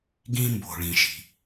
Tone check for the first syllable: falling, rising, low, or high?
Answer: high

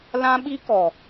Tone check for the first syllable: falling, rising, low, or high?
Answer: high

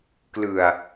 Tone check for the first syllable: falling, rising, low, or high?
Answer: low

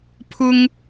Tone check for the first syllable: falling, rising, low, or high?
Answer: high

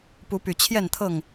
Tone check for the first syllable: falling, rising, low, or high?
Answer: rising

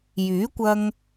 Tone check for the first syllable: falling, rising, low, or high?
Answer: rising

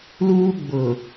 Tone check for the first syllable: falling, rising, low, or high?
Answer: high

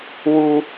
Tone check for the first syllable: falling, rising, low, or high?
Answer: high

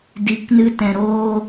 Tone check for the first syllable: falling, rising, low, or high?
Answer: rising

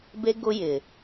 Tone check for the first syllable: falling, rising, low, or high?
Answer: high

